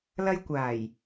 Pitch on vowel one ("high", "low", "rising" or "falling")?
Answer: high